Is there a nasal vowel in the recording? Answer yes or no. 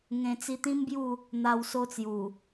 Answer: yes